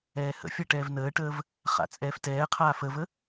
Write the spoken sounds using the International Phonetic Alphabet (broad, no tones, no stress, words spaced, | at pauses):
ɛːhə̰fʲʌ ʈɛːvnəːʈəːv | χa̰t͡sʼɛːftɛːqʰaː fəvə